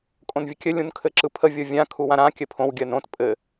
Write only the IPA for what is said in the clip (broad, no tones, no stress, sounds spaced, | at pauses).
kʼ õ n vʲ ə kʲ ɘ lʲ ũ n kʰ ɘ ǁ ɯ pʰ ə vʲ o vʲ ã kʰ u w ã ɾ ã kʲ ɘ pʰ õ w ɡʲ ɜ n õ t pʼ ɘ